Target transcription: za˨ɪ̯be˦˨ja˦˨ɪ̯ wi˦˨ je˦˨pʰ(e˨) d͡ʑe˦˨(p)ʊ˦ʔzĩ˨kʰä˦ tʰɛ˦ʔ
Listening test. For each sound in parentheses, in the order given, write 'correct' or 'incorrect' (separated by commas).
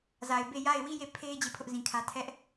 incorrect, incorrect